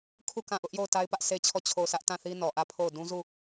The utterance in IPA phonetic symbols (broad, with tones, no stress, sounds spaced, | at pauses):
kʰ u˦˨ k ã˦˨ ʔ ʊ˦ ʔ j o˦˨ ʊ̯ t a˦ ɪ̯ p ä˦ ʔ sʰ e˦ t͡ɕʰ ɔ˦˨ t͡ɕʰ o˦˨ ʊ̯ sʰ ä˦ ʔ t ã˦˨ θ i˦ n ɔ˨ ʔ ä˦˨ pʰ o˦˨ ʊ̯ d ũ˦ z u˦˨